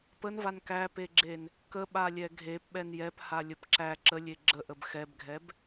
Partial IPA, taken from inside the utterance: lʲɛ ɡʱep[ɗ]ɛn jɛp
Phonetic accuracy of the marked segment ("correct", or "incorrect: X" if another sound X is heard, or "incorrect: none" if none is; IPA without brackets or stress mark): incorrect: ɓ